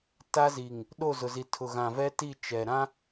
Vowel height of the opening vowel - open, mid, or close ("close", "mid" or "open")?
open